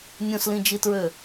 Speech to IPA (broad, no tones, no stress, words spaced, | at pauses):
nʲõslĩd͡ʒitɹø